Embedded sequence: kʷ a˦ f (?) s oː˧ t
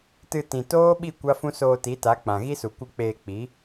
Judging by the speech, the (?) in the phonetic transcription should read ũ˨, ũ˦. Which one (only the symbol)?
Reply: ũ˦